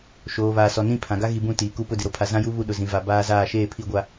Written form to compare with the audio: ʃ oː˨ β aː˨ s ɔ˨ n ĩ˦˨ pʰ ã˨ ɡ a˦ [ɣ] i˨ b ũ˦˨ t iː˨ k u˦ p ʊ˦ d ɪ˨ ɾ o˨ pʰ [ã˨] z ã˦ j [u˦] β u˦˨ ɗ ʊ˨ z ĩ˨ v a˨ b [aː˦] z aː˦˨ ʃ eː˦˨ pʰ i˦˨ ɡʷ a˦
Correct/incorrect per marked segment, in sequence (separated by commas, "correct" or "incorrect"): correct, incorrect, correct, correct